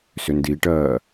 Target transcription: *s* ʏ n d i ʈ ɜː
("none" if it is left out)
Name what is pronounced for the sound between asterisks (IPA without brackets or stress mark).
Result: s